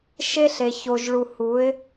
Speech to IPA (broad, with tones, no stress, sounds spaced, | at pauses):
ʃ e˦ ɬ e˨ ç o˨ ʒ ɭ u˨ h u˨˦ ɪ̯